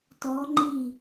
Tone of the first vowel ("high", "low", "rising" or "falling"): rising